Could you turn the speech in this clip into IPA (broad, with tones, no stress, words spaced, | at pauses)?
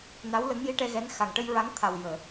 na˧˥wlə˧˥ŋji˧ ʈɛ˧ɣɛ˧˥n xa˨˩ŋʈə˧jɹa˧˥ŋt̪ʰa˨˩w jəː˨˩˨